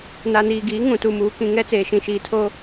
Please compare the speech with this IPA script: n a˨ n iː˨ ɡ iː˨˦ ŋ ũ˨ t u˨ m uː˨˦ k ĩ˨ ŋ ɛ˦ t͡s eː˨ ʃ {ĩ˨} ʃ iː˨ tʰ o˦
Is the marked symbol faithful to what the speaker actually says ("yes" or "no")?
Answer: yes